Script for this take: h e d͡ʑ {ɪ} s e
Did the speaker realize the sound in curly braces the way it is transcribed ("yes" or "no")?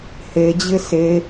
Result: yes